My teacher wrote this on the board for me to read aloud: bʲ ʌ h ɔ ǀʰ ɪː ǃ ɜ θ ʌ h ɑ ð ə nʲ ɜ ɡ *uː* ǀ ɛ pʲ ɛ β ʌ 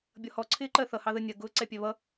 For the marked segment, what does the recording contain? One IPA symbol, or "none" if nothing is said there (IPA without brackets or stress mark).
ʊː